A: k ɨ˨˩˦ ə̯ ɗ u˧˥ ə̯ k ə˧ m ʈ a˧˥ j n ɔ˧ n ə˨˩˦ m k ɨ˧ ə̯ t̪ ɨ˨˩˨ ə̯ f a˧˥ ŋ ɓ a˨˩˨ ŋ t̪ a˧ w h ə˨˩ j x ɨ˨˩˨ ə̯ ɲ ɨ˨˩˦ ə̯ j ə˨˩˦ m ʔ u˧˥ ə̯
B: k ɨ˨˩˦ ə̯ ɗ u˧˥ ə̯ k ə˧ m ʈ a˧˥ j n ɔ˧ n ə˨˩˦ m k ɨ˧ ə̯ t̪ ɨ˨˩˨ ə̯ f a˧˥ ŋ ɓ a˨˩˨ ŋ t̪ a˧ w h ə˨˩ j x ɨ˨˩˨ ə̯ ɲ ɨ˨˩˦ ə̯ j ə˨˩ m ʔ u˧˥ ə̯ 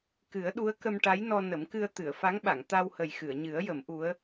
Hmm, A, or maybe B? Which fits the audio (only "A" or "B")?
A